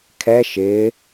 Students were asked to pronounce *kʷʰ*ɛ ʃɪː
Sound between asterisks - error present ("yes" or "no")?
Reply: yes